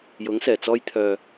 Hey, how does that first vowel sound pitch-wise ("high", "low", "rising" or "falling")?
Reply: rising